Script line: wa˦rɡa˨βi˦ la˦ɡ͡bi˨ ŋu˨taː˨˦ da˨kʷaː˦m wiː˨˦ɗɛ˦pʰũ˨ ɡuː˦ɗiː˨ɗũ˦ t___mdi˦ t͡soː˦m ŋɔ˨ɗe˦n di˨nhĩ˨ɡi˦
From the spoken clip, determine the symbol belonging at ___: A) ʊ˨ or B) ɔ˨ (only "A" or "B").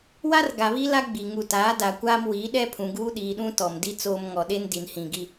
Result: B